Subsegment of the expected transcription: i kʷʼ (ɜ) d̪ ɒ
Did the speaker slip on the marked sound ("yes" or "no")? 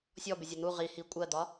no